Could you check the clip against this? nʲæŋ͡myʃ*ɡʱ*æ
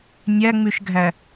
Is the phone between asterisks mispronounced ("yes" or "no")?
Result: no